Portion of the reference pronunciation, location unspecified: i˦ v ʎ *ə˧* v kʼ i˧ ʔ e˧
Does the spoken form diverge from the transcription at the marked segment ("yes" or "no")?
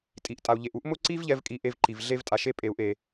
yes